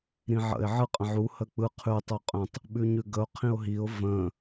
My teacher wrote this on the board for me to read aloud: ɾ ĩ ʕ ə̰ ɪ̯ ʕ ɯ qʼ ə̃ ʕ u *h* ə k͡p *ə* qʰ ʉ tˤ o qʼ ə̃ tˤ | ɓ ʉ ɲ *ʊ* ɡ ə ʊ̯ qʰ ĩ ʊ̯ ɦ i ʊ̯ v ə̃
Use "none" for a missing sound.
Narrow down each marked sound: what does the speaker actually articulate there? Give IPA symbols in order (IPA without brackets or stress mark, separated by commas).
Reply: h, ɯ, ʉ